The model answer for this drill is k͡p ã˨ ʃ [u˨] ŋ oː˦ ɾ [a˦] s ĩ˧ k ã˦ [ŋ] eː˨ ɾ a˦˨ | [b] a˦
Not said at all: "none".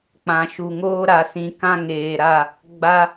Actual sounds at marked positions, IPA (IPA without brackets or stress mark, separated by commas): u˨, a˧, ŋ, ɡ͡b